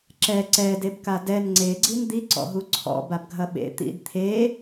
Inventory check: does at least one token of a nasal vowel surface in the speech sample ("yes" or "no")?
no